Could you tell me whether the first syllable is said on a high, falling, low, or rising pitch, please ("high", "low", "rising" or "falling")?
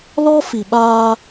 high